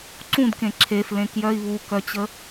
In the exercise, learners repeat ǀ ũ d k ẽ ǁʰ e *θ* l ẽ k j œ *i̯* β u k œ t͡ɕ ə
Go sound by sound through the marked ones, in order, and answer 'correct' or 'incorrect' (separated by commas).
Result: incorrect, correct